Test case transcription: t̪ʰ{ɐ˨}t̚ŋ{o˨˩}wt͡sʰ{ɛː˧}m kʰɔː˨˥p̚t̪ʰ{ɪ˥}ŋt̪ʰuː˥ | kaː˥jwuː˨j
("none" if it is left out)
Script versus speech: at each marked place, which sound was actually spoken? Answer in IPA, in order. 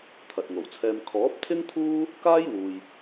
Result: ɐ˨, o˨˩, ɛː˧, ɪ˥

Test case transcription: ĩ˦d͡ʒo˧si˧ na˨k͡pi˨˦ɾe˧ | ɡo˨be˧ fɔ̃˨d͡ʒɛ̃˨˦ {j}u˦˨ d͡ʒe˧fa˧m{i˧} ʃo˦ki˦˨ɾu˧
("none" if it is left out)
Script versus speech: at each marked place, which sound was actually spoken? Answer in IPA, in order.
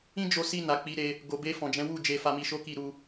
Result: w, i˧

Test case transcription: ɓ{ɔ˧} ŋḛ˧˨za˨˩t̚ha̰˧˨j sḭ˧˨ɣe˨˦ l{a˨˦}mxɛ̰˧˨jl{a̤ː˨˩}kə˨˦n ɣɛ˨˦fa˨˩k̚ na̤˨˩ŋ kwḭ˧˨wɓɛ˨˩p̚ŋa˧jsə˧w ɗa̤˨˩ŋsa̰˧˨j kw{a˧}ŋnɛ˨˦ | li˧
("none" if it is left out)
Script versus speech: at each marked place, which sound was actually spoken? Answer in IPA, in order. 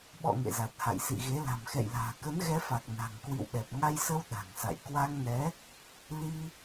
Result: ɔ̰˧˨, a̤˨˩, a̤ː˨˩, a˧

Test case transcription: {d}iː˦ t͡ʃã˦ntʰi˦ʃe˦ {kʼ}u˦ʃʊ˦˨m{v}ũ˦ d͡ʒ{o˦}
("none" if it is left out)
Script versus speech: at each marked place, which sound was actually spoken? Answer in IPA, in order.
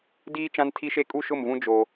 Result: d, kʼ, v, o˦

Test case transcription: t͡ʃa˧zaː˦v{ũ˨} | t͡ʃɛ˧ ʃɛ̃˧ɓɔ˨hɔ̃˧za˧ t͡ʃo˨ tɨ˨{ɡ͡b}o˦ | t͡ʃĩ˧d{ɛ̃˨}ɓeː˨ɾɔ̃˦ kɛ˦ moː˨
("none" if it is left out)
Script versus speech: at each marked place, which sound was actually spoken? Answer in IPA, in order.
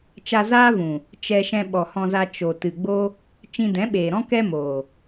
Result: ũ˨, ɡ͡b, ɛ̃˨˦

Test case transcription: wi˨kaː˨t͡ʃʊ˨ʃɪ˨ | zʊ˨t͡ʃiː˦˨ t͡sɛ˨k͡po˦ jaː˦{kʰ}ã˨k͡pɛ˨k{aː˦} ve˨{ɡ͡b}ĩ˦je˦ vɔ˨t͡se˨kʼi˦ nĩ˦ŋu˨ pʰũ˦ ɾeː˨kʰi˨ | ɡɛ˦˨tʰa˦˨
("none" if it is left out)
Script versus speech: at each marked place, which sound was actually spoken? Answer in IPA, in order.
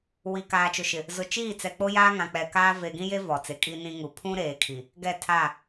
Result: ŋ, aː˦, ɡ

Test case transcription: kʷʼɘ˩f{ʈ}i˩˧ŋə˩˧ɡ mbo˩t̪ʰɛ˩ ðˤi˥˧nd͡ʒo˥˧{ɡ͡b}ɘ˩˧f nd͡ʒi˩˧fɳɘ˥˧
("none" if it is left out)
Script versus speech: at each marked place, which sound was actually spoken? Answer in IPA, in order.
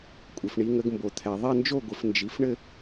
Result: ɳ, ɡʷ

